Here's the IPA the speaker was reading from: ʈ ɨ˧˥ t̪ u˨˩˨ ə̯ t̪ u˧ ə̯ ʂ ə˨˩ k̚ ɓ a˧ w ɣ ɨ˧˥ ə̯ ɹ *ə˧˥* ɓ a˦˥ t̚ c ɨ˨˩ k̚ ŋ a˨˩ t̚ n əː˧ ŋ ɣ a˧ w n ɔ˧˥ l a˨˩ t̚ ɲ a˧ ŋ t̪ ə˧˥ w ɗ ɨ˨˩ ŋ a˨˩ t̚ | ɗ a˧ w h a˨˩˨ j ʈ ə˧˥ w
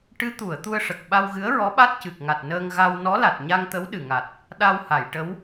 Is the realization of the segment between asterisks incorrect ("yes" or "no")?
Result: yes